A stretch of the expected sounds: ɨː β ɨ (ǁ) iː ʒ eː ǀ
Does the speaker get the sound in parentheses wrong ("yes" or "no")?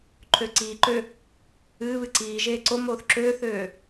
yes